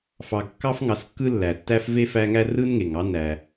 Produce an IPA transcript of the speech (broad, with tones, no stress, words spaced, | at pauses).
fɑ˨ɡkːɑ˥f ŋɑ˨skːɯ˦ lːæ˩tːæ˥f ve˥fæ˦ŋæ˥ rɯ˥nŋe˩ŋɑ˥ næ˨